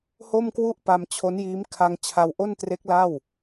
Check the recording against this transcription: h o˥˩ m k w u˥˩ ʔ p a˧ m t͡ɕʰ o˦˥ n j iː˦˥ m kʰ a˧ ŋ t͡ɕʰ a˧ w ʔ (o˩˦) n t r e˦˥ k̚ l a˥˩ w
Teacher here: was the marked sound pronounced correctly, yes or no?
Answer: no